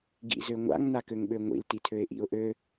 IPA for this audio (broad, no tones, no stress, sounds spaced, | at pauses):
ɡ ḭ z ø ŋʷ a̰ ŋ n a k ø ŋ ɓ ø ŋʷ ḭ l t i tʰ ø ɪ̯ ʔ ḭ ʊ̯ ʔ ø